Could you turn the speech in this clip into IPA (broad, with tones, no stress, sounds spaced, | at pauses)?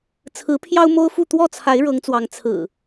t͡sʰ ɹ̩˨˦ pʰ j ɑ˦ ʊ̯ m o˦ ʊ̯ f u˥˨ t̪ w ɔ˥˨ t͡sʰ a˨˦ ɪ̯ ɻ ɤ˨˦ ŋ t͡s w ɑ˨˦ ŋ t͡sʰ ɹ̩˨˩